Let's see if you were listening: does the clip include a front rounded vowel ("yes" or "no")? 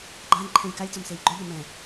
yes